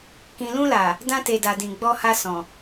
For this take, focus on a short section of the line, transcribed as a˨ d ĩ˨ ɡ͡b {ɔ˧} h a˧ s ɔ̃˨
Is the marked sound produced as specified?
yes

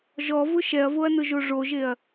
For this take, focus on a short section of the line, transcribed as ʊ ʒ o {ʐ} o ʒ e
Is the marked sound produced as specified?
yes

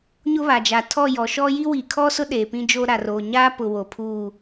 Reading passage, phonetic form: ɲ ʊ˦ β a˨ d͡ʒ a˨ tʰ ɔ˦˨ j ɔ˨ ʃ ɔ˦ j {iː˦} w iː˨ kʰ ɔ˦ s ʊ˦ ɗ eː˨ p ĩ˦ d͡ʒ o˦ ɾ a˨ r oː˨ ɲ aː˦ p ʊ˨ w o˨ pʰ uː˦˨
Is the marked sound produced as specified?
no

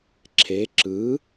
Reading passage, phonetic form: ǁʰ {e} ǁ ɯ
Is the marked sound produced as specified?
yes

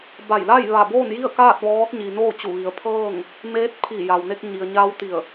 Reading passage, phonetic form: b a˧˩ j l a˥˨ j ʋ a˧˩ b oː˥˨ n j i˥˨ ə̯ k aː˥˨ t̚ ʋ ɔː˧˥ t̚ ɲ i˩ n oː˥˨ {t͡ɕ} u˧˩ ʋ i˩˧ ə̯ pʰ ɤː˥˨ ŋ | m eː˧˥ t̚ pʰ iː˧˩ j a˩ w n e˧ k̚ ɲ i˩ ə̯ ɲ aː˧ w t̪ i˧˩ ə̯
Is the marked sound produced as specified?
yes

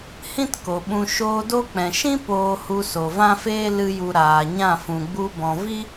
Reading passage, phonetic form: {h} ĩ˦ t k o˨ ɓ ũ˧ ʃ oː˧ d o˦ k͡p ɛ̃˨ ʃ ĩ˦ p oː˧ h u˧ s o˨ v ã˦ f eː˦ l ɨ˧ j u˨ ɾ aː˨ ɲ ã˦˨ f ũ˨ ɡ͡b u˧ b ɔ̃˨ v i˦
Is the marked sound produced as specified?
yes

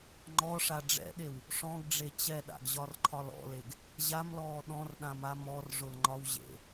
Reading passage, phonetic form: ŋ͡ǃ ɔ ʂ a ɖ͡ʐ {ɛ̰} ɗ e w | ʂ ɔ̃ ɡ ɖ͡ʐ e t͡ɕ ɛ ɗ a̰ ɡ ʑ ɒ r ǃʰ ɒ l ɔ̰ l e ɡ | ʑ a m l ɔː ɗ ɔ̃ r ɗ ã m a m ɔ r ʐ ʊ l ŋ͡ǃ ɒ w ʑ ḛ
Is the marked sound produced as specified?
yes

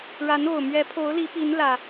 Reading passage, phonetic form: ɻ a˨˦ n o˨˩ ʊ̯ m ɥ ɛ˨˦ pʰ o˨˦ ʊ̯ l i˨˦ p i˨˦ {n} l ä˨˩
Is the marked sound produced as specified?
yes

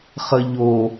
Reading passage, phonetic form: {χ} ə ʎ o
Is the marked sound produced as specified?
yes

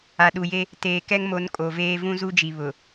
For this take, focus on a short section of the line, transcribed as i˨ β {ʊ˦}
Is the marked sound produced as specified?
no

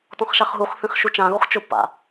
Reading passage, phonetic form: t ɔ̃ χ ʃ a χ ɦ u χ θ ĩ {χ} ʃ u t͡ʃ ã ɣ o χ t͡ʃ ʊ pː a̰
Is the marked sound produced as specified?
yes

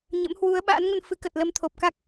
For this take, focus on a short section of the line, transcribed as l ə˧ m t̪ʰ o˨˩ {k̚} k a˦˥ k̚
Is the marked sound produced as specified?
no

